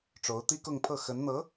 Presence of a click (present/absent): absent